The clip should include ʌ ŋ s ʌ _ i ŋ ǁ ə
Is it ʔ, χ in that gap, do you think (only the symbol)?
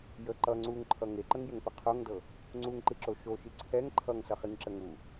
χ